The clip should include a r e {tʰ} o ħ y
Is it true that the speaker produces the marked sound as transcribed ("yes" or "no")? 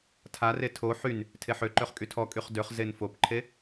yes